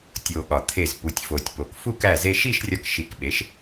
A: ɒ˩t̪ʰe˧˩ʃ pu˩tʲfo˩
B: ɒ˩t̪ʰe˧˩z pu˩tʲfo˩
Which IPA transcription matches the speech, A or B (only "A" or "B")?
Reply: B